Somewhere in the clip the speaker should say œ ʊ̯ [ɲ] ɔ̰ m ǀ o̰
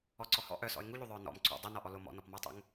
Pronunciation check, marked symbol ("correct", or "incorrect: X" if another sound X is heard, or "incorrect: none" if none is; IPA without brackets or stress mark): incorrect: n